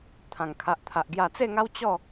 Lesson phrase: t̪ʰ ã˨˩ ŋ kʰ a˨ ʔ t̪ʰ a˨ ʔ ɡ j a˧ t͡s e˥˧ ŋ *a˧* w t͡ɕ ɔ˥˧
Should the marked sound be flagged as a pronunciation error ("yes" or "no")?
yes